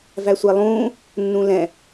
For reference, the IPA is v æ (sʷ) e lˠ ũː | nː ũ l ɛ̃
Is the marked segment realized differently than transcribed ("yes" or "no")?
no